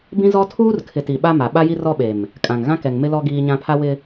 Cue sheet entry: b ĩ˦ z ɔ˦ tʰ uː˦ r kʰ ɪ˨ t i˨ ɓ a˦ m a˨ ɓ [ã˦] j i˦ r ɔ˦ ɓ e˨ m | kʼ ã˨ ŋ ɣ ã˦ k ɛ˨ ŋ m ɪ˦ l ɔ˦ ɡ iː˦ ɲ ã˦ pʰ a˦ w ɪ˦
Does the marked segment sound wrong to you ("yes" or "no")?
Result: yes